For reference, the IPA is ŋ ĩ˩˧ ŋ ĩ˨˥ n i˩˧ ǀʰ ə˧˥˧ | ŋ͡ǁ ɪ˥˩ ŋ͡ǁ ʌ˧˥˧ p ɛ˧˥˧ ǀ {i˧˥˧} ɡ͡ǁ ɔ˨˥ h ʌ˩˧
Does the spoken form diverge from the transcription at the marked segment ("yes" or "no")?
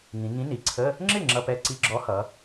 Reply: no